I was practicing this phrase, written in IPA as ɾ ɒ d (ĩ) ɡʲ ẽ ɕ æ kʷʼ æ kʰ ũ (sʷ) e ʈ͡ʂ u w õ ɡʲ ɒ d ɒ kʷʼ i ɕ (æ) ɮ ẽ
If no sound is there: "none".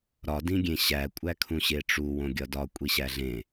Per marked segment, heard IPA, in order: ĩ, ɕ, æ

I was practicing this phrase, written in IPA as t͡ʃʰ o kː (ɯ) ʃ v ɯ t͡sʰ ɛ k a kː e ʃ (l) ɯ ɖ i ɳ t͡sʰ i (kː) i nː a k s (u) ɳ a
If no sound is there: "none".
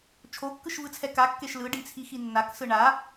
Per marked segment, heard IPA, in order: ɯ, l, x, ɯ

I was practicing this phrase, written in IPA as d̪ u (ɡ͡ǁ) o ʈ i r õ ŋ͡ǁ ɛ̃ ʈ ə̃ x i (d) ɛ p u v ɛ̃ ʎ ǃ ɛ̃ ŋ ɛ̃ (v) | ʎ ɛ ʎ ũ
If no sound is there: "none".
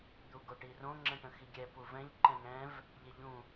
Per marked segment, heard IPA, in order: ɡ, ɡʲ, v

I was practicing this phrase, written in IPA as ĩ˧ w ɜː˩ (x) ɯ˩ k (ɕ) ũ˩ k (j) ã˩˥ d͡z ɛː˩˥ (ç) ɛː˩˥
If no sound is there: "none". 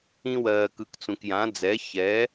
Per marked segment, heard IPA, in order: k, t͡s, j, ç

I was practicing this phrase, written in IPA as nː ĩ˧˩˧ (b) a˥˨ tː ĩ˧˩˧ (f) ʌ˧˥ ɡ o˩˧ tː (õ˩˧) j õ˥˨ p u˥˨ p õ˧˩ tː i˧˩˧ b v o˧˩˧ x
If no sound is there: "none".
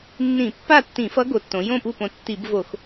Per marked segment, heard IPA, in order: pː, f, õ˩˧

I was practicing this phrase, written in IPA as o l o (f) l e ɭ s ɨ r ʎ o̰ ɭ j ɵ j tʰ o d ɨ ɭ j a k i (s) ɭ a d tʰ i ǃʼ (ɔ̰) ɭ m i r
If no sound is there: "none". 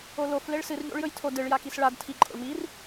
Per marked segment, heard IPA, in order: f, s, o̰

